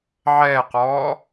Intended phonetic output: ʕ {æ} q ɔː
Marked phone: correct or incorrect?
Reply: incorrect